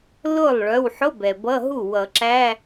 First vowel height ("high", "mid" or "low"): high